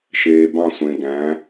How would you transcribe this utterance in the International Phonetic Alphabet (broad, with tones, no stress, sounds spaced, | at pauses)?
ʃ eː˨ b ɑ̃˦˨ sʷ ẽ˨ ɡ æ̃˨˦